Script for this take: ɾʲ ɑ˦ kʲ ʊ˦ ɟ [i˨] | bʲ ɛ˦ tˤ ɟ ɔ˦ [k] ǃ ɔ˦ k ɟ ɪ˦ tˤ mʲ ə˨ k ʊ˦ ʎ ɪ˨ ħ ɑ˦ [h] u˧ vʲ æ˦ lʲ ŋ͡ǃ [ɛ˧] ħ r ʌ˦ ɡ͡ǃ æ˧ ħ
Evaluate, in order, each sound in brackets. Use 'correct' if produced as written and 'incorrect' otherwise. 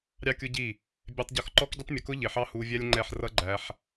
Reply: incorrect: i˦˨, incorrect: x, correct, incorrect: ɛ˦˨

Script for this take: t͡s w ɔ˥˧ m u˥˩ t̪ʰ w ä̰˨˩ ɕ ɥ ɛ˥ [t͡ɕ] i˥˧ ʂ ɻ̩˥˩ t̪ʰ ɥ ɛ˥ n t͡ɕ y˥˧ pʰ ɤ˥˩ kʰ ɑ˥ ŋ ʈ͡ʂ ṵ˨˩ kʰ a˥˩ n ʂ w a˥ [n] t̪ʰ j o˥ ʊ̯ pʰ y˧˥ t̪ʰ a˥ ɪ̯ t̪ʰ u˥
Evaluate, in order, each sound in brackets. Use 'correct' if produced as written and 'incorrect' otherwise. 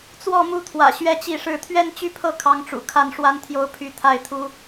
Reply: correct, correct

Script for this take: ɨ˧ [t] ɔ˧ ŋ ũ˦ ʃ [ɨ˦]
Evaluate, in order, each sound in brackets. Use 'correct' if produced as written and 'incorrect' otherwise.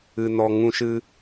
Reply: incorrect: n, correct

